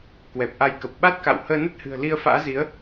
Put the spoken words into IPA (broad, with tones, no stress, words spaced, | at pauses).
kwɛ˨˩p̚ʔa˨˦jkə˨˩p̚ ɓa˦˥t̚ka̰˧˨w həː˧nə˦˥t̚hɨ̤˨˩ə̯ li˧ə̯fa̰ː˧˥zi˨˦ə̯